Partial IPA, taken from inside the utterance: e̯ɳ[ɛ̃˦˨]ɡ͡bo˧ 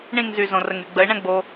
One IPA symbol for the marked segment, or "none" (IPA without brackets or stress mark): ɛ̃˦